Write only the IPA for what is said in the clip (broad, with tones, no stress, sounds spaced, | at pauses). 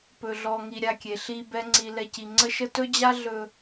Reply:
p ɵ˧ ɮ ɔ˧ ŋ i˧ ɾʲ a˧ kʲ e˨ ɬ i˧ b ɛ˦ ŋ͡ǀ i˧ l ɛ˧ c i˨ ŋ͡ǀ ə˦ ʃ ə˦ t ɵ˦ d͡ʑ a˦ ɮ ɵ˧